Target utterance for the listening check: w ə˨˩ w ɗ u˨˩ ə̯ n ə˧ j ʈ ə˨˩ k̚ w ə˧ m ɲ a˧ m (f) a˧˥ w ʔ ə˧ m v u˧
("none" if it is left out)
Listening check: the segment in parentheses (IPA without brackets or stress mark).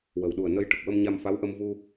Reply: f